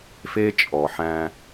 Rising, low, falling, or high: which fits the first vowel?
high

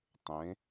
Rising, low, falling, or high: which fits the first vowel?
rising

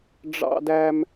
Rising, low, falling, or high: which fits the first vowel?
high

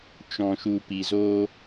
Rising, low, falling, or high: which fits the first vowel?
low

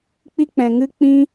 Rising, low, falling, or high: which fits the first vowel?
high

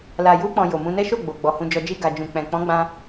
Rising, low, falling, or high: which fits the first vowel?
low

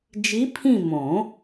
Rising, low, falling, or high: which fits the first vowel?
rising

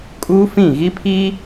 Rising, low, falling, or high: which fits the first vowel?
high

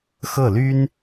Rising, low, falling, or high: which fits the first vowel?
falling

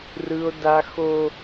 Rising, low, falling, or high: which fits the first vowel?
high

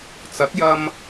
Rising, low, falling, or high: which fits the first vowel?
rising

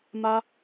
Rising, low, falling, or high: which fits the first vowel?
high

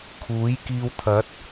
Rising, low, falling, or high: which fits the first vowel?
rising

